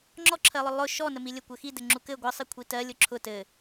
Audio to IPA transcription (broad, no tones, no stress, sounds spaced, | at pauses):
ŋ͡ǁ ɔ ǁʰ ɜ lˠ ʊ lˠ ʊ ʃ ɔ n ə m i lʲ ɘ kʷ ɘ x i d ɘ ŋ͡ǁ u k ɘ ɡʷ ɜ sˤ i kʷʰ i t ɜ lʲ ʊ ǁʰ ʊ t ɘ